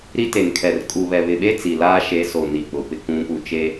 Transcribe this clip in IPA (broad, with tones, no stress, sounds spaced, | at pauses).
ɾ i˦ t e˨ n kʰ ɛ˨ r kʼ u˨ β ɛ˨ β ɪ˨ ɓ e˦ t͡s i˨ l aː˦ ʃ e˨˦ s o˨ n i˨ k͡p ʊ˨ p ɪ˦ k ũ˨˦ p u˨ t͡ʃ e˦